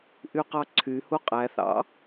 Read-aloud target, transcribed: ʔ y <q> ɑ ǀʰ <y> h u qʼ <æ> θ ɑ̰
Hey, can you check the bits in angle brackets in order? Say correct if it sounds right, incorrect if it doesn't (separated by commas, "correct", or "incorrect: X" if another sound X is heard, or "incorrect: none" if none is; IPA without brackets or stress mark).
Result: correct, correct, correct